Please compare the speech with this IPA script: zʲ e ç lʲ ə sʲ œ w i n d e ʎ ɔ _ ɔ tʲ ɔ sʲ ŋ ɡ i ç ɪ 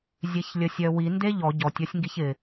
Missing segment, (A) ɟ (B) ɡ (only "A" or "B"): A